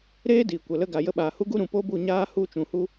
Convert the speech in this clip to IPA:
ɾ eː˦ d iː˨ kʷ ə˨ l ə˧ ɡ a˨ j ə˧ ɓ aː˨ h u˦ ɡ u˦ ɾ ũ˨ p o˦ b u˦˨ ɲ aː˦ h u˦˨ t͡ʃ ũ˨ h u˦

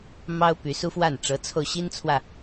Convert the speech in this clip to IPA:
m ɑ˥ ʊ̯ p y˧˥ s u˥ f w a˥˩ n ʈ͡ʂ ɤ˧˥ t͡sʰ o˧ ʊ̯ ɕ i˥ n t͡sʰ w ä˨

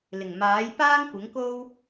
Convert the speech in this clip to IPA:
l ɪ˨˩ ŋ m aː˨˥ j p aː˥ ŋ kʷ ɪ˨˥ ŋ k o˥ w

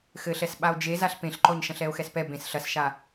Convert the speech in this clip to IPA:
x ɘ ɬ ɛ s ɓ a o̯ d͡ʒ e z a ɬ p ẽ ɬ ǃ ɔ ɲ ʃ ɐ̃ ɬ ɛ o̯ x ɛ s p ɛ b ẽ s ɬ ɐ s ʃ a

